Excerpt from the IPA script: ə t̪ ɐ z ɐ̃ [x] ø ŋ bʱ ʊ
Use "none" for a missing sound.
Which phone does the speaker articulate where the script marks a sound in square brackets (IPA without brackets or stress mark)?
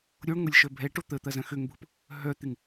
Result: x